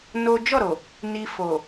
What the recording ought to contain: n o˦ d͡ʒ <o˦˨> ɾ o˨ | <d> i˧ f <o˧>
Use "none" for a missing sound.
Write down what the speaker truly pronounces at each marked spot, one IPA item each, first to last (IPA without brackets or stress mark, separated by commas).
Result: ɔ˦˨, n, o˨